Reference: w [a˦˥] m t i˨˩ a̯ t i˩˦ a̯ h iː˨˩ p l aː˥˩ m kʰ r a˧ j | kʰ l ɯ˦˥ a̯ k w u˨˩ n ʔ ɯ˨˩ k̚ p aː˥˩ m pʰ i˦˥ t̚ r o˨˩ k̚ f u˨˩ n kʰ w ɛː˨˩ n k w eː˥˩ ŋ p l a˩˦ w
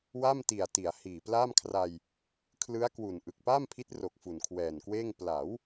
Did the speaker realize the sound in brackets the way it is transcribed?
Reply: no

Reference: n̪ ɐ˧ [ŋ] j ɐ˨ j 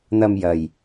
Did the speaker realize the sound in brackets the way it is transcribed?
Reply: no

